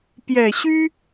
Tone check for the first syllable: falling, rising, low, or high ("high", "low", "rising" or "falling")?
low